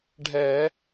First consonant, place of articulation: retroflex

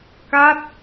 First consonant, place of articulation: velar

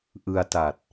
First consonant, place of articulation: glottal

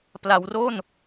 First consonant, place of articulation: labial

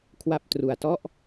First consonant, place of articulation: velar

